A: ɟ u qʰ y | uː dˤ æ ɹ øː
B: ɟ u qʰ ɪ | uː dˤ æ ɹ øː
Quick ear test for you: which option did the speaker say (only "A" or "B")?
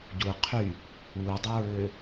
A